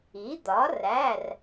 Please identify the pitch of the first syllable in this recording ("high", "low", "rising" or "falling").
rising